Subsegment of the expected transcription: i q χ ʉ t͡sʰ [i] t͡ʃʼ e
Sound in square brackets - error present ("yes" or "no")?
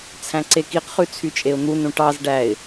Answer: yes